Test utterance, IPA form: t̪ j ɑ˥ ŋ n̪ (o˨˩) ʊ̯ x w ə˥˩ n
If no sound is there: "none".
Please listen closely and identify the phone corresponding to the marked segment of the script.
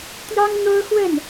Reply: o˥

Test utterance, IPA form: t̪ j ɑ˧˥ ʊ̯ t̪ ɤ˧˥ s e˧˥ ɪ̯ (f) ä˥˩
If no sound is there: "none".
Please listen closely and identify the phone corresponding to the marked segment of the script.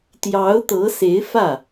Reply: f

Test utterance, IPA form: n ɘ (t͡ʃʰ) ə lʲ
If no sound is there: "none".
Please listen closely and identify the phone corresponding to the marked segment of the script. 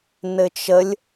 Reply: t͡ʃ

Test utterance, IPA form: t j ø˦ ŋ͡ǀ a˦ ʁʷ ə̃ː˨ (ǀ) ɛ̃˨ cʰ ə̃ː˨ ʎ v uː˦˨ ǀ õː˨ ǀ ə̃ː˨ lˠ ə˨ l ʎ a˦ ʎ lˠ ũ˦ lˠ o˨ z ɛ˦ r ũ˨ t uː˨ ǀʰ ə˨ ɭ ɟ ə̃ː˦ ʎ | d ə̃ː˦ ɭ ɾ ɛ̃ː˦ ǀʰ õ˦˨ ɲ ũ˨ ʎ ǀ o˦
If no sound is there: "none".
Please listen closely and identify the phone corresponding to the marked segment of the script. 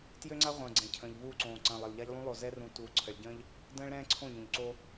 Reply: ɡ͡ǀ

